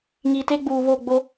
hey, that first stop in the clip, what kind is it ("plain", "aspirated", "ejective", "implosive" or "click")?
plain